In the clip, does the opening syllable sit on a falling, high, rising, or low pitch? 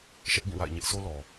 high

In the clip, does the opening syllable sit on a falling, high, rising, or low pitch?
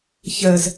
low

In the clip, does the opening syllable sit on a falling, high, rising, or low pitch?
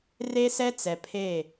high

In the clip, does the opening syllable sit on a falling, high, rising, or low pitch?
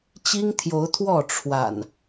high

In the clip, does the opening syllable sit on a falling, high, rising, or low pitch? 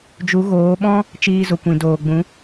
rising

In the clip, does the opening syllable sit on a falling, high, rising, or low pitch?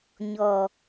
low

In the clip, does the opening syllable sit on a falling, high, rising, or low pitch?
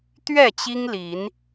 falling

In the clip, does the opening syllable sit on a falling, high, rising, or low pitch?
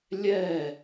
falling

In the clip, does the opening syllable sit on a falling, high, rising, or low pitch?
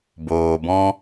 low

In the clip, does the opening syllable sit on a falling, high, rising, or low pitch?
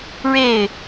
falling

